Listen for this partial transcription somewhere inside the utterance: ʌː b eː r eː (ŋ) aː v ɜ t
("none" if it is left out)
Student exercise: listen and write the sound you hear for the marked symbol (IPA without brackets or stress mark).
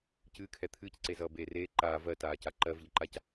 ǃ